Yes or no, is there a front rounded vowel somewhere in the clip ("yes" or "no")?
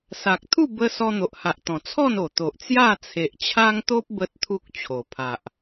no